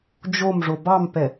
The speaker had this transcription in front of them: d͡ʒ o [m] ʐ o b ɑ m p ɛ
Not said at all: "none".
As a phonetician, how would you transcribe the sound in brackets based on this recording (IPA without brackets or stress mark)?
m